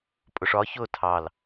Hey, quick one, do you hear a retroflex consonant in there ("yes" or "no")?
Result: yes